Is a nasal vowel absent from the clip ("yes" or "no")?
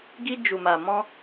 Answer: no